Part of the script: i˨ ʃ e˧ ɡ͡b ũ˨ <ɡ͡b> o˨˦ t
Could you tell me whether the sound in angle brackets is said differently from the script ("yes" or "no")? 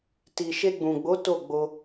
no